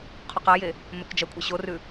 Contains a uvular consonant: yes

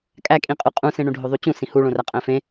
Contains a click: no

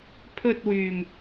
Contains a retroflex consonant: no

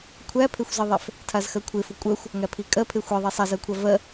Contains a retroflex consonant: no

